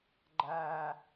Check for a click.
present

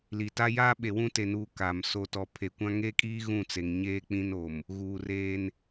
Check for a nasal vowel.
present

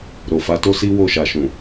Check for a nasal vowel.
present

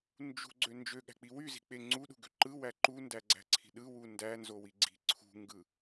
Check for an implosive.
present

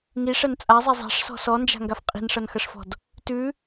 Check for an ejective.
present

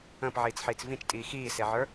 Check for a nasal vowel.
present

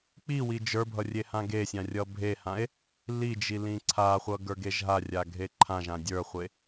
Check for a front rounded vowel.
absent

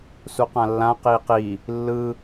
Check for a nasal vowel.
present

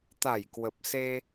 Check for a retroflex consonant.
absent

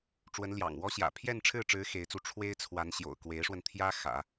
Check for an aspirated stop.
present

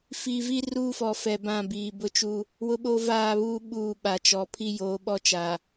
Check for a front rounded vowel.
absent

